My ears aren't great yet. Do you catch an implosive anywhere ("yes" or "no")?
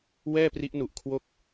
no